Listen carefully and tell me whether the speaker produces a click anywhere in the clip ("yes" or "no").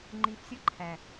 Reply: yes